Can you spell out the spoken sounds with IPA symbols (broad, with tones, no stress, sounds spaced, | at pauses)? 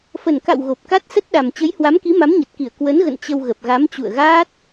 f ə˨˩ n k a̰˧˨ w ɣ o˨˩ p̚ k a˦˥ t̚ s ə˦˥ t̚ ɗ a˨˩ m t͡ɕ ə˨˦ j h w a˨˦ m k i˨˦ m a˨˦ m ɲ ə˨˩ t̚ k i˧˩ ə̯ k w ə˨˦ n ɣ ə̰˧˨ n t͡ɕ ə˧ w ɣ ə˨˩ p̚ ɣ a˨˦ m t͡ɕ ṵ˧˨ ə̯ ɣ aː˦˥ t̚